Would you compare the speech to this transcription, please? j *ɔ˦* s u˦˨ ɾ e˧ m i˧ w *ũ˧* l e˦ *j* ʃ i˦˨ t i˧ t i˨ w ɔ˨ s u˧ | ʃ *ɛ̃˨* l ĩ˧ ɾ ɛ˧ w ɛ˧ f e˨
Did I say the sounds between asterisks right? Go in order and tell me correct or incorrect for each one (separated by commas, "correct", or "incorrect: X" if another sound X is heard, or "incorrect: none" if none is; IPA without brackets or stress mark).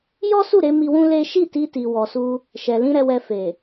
correct, incorrect: ũ˦, incorrect: none, incorrect: ɛ˨